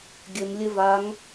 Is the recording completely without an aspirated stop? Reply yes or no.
yes